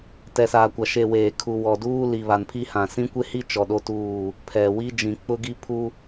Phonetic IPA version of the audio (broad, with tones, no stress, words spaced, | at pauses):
tɛ˨saː˨kʷa˨ ʃe˨ weː˨ kʰu˨ wɔ˨duː˦ li˨βa˨npʰi˦hã˨ sĩ˦kʷe˦hi˦ t͡ʃɔ˨ɗo˦tuː˦˨ | pʰɛ˨wi˦ d͡ʒĩ˨k͡pʊ˦ ɡi˦pʰu˦